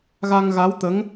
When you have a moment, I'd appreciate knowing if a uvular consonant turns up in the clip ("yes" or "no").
no